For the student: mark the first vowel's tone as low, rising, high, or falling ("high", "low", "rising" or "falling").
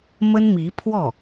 high